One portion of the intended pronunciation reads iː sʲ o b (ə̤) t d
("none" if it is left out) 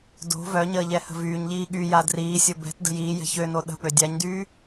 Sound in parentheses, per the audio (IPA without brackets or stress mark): ɛ̤